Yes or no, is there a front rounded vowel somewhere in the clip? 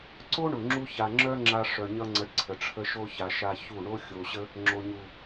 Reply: yes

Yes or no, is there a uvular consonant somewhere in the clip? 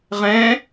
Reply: yes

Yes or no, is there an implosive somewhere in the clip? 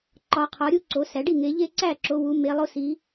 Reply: no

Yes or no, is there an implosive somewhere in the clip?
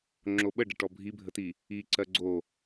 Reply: yes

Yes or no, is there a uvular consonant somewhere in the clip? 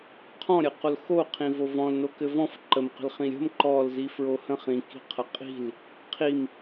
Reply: yes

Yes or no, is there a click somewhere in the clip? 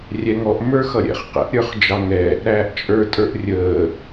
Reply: no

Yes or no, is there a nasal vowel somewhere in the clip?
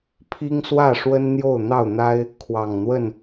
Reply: no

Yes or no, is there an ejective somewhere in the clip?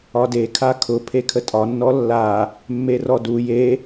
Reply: yes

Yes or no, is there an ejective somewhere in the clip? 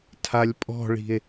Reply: yes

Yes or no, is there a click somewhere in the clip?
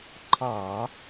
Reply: yes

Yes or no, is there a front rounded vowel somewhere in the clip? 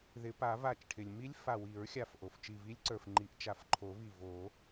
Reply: no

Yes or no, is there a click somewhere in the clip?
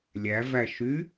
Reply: no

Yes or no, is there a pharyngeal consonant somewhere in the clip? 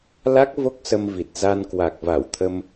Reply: no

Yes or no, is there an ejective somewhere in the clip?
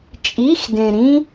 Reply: yes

